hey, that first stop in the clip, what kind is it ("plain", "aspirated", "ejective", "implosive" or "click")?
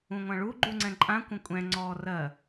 click